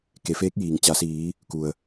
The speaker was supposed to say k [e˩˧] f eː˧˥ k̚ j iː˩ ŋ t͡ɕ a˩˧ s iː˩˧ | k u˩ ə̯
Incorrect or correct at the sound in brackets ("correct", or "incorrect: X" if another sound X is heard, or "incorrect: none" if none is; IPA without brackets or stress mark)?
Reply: correct